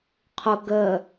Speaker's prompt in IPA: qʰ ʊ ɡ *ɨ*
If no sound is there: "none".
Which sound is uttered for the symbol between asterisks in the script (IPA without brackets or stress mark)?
ə